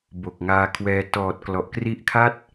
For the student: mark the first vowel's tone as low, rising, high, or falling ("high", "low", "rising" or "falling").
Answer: low